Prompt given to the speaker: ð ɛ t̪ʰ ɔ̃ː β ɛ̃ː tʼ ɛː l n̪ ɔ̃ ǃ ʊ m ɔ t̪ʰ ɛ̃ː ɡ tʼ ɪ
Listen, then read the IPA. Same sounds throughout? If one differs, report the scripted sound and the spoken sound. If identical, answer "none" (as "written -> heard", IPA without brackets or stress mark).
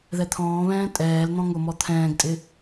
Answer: ǃ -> ŋ